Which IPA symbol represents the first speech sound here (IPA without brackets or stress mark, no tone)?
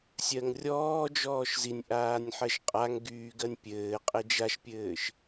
sʲ